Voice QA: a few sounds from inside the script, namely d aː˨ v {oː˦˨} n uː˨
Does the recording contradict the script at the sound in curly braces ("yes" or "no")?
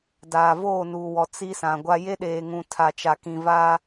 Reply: no